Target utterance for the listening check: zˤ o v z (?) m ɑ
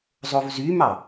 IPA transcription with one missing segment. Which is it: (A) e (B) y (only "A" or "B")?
B